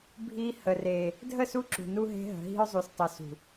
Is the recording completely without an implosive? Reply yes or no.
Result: yes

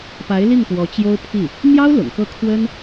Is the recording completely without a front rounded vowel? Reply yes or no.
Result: yes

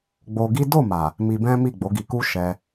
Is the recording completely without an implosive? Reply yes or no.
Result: yes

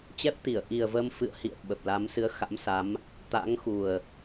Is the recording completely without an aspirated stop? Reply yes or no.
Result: yes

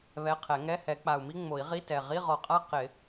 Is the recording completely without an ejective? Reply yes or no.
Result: no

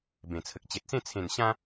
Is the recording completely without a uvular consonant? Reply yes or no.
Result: yes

